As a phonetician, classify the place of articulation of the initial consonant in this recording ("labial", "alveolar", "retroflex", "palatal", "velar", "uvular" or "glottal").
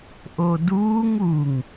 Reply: glottal